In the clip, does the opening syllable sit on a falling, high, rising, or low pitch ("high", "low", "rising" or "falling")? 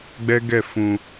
high